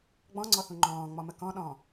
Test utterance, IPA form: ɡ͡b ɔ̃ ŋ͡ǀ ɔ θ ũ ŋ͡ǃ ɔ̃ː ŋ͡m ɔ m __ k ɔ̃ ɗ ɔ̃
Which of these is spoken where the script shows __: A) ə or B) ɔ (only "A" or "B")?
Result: A